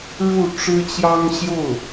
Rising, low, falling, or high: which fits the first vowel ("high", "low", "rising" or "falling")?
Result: falling